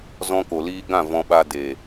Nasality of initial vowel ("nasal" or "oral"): nasal